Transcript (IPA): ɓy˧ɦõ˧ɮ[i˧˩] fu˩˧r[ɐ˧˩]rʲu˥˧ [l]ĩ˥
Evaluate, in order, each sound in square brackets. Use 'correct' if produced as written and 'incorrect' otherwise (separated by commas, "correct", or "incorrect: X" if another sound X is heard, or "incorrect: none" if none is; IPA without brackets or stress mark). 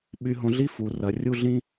incorrect: i˥, incorrect: ɐ˩˧, incorrect: ɮ